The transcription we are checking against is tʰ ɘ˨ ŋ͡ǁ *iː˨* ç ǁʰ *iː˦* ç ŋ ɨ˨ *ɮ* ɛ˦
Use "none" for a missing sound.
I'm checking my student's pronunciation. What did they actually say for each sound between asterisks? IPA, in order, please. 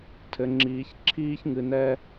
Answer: iː˨, iː˦, n

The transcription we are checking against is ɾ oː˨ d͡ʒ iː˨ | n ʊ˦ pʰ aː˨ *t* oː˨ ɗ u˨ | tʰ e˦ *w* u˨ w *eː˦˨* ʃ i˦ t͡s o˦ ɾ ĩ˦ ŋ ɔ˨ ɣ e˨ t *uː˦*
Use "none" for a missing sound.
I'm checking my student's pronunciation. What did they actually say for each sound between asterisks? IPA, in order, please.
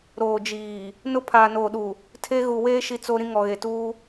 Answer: n, ɣ, eː˦, uː˦

